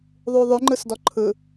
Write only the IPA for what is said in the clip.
ðˤuðˤʉ ŋ͡ǃɯsdɔǃʰɯ

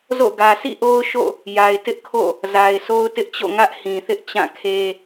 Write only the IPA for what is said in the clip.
zo̰˦˨ɡä˨ sʰḭ˦˨ʔo˦ʊ̯ʃo̰˦˨ | ja˨ɪ̯tɪ˦ʔkʰo̰˦˨ | za˨ɪ̯sʰo˦ʊ̯ tɪ˦ʔt͡ɕo̰˦˨ ŋä˦ʔhĩ˨θɪ˦ʔ t͡ɕã˦˨kʰe˦

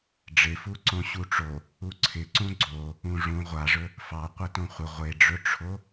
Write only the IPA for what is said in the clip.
ɖ͡ʐɪfuǀõ ɕuʈ͡ʂo | uǀʰɪǀũ ɡ͡ǀo | ũʐũ ʁʷaʐɵ | fɑ qʷetõχʷɪ ʁʷeɖ͡ʐɵʈ͡ʂʰo

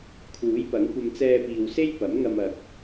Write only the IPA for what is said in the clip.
kʰuː˨˥jpɐ˨˥ŋkʷɐ˧m t͡sɛː˧piː˨wse˥j pɐ˨˥mŋɐ˧m ɐ˨k̚

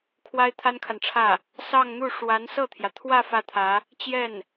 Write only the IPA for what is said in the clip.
kʰwa˥ɪ̯t̪ʰa˥nkʰa˨nʈ͡ʂʰä˥˩ | sɑ˥˧ŋn̪u˥˩ ʂwa˧˥nsɤ˥˩t̪ʰjä˩t̪ʰwä˥˧ fä˥˩t̪ʰä˧˥ | t͡ɕjɛ˥˩n

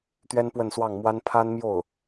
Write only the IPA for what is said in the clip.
t̪ɥɛ˥npwə˥˧nswɑ˥˩ŋmwa˥n pʰa˥nmjo˥˩ʊ̯

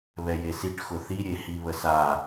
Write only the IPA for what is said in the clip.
βɛjesiʈ xʊθi ɾʲehiβəsa

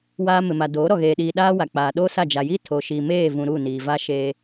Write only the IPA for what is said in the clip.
waː˦ mɪ˨ma˨ doː˨˦ɾɔ˨ ɣeː˨ɗiː˨ɗaː˦ wa˨k͡paː˨ɗoː˦sa˦˨ d͡ʒa˨ji˦ tʰo˨ ʃi˨ meː˦˨vũ˨ ɾu˦˨niː˨va˦ ʃe˦

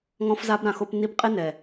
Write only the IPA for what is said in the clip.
ŋɔ̃˦fza˦b ɾã˧xo˦pnːi˦b qʼɪ˦nɛ˨

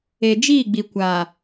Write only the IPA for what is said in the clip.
e˨d͡ʒiː˦˨ɡ͡bi˨ kʷaː˨

